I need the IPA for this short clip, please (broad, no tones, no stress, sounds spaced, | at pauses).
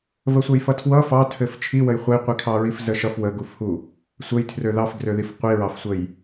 v ə sʷ ʌ j f ʌ tʰ w ʌ f ɑ tʰ ɘ f t͡ʃʰ i w ə j χʷ ə j qʷ i kʰ ɑ ɹ i f z ə ʃ ʌ f w ə ɡ u f h u | sʷ ə j tʰ r ø ð ɑ f ɡ r ø ð i f qʷ i ɹ ɑ f sʷ ə j